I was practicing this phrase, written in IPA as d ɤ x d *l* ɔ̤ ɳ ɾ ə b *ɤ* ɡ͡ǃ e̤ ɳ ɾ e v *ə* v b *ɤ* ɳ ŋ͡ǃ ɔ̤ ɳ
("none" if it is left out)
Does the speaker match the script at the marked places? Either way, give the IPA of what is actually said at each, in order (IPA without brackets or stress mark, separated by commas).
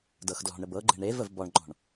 l, ɤ, ə, ɔ